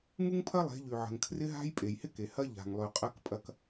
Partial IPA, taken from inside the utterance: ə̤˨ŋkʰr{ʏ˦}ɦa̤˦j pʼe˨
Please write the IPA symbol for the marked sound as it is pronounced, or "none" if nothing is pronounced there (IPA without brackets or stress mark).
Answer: ɪ˦